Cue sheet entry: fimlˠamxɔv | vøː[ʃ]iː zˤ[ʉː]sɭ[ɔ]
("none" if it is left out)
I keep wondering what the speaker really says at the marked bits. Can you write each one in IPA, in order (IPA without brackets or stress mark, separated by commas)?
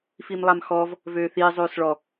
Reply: θ, øː, ɔ